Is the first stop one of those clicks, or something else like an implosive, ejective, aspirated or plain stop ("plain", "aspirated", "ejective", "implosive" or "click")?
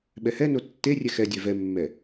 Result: implosive